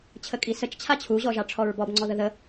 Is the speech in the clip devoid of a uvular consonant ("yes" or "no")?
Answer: yes